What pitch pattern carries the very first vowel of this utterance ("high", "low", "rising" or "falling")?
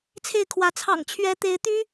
falling